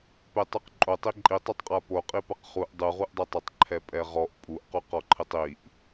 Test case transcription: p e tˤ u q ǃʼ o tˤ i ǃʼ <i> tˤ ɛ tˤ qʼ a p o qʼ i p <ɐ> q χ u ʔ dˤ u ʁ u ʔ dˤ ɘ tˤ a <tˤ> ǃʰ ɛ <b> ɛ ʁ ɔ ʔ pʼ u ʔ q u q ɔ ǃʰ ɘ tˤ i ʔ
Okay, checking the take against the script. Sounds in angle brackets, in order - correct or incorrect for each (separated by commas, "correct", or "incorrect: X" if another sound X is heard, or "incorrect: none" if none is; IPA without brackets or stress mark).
correct, correct, correct, incorrect: pʼ